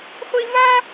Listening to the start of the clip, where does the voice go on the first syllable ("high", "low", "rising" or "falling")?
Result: high